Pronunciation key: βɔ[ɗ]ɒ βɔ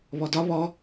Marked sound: incorrect: d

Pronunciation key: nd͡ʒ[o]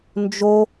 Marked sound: correct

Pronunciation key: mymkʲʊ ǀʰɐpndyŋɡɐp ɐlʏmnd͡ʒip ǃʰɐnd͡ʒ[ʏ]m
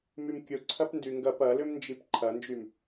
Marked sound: incorrect: y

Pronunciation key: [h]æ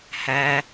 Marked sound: correct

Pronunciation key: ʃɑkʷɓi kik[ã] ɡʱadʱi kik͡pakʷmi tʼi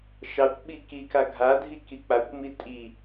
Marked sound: incorrect: a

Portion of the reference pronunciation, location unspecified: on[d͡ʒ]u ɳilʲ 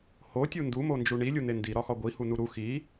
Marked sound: correct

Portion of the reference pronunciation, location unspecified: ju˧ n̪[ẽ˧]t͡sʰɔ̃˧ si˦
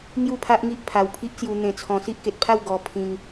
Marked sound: correct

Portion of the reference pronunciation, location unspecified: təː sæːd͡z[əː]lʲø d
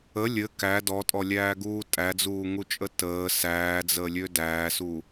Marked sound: correct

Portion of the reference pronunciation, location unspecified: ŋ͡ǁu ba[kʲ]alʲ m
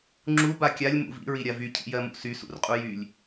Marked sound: correct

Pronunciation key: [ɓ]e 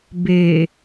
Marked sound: incorrect: b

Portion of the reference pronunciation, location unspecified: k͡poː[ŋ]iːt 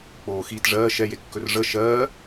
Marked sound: incorrect: x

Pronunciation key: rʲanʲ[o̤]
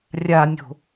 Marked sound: correct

